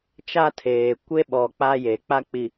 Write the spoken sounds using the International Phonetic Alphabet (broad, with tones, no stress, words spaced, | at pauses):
t͡ʃa˦tʰeː˨ kʷe˦ɓɔ˨ k͡pa˦je˨˦k͡pa˦k͡pi˨